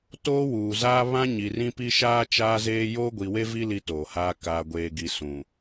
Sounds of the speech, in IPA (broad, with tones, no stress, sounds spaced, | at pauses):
t oː˦ w uː˨ z aː˦ β ã˦ ɲ i˨ r ĩ˦ p i˦ ʃ aː˦ t͡ʃ aː˦ z eː˦ j oː˦ ɡʷ i˨ w e˦ v i˦ l i˦ t oː˨ h aː˦ k aː˨ ɡʷ eː˨ ɡ i˨ s ũ˨